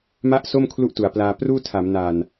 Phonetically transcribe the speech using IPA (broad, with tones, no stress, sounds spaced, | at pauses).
m a˥˩ ʔ s o˥˩ m kʰ l u˥˩ ʔ t u˩˦ a̯ p l aː˧ p r uː˥˩ tʰ a˩˦ m n a˨˩ n